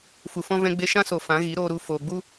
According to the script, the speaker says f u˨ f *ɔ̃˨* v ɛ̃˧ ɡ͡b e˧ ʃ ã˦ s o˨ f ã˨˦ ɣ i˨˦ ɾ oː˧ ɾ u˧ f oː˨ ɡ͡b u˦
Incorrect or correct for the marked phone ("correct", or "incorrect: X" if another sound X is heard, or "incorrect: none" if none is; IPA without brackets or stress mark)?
incorrect: ɔ̃˦